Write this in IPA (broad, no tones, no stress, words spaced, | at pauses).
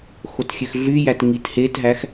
xotxʲøxɮyjæt ŋithetɦæx